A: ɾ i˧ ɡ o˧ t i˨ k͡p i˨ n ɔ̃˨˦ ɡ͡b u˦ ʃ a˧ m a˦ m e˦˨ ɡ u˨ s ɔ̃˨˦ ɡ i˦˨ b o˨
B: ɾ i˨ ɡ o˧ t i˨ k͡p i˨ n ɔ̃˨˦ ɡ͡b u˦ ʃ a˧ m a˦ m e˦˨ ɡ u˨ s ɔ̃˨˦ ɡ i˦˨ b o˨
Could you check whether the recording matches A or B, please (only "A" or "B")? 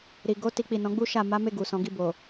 B